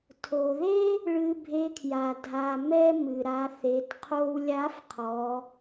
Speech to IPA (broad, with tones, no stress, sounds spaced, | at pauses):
tʰ o˩ ð e˥ | ɭ ɨ˧ bʱ e˧˥ kʰ j a˩ dʱ a˩ m ɛ˥ m ɨ˩ ɾ a˩˧ θ e˩˧ t qʰ o˧ w lʲ a˧˥ f qʰ ɔ˩˧